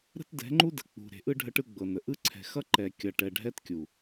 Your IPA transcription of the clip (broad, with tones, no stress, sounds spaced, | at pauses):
ɾ ə̤˦ t d ɛ̤˨˦ ŋ͡ǃ u˦ d ə̤˨ k͡p ṳ˨ ɾ e̤˨ ʔ ɯ˦ ɖʱ ə˦ ʈ ɯ˦ ɡ͡b ɤ˨ n ə˨ ʔ ɯ˦ ǀʰ ɛ̤˨ x ʌ˦ ǃ ɛ˨ kʲ ʌ˨ ʈ ɛ˨ ɖʱ ɛ˦ t kʲ u˨